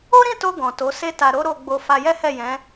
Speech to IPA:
o˦ɾĩ˦˨to˧ ɡɔ̃˨to˨˦se˦ta˧ ɾo˦ɾo˧ɡ͡bo˧ fa˧jɛ˦hɛ˦˨jɛ̃˨˦

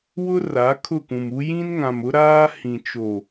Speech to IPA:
wʊ˦ ra˨˦kʰʊ˦˨kũ˨mu˦ jĩ˦nŋã˨mʊ˦ ɾaː˦ hĩ˨t͡ʃo˨

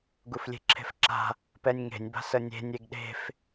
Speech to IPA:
ɡuflʲe̤ǁʰe̤fǁa̤ | pɛnʲŋe̤nʲ ba̤sənʲe̤ nʲeɡɗe̤f

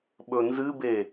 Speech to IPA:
ɓɵnzɨbe

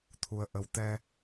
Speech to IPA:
t̪ʰu˧ə̯ʔə˧w t̪ɛ˧

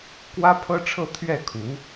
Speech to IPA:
kwä˥pʰɤ˥ʈ͡ʂʰɤ˥˧ t̪ʰɥɛ˥˩kʰu˧˥

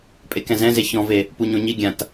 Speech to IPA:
pʼekɛ̃zɛ̃ze çɔ̃ve | puɲõɲiɡʲãt

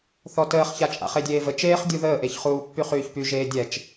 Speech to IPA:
θɔtəːχça t͡ʃʼa̰χedʲeːvə t͡ʃeːχ dʲuðəːʔeçχuː pːyχyːçpy ʒeːdʲɛt͡ʃ

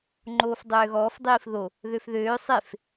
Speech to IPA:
ŋ͡ǃoːfdˤøːɣɔːf dˤiːfðo | ðøfðøː sˤef

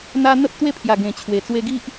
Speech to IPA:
n̪a˧ n̪ə˦p̚t̪we˥˧pʰja˨˩ ɡẽ˨˩t͡ɕʰwe˨˩ t͡swe˧ɡi˦ʔ

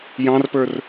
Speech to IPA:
jɑ̃rpə˞r

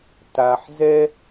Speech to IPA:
ta˩ħzɛ˦

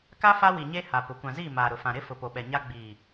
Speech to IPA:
ka˦ fa˦wi˨ɲe˦ ha˨pʊ˨˦ kʷã˨ziː˦˨ maː˨ɾʊ˨fã˨ ɾɪ˦ fʊ˨po˨ɓɛ˨ɲa˦ ɡ͡biː˨

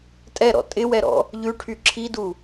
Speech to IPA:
tʼɛɾɔ̰ tʼɪwɛɾɔ̰ | ʎʉʈʰy ǁʰidu

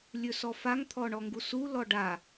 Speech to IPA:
lʲɵsɔfaŋ t̪ʰɔɳɔŋɡusu lɔɖa

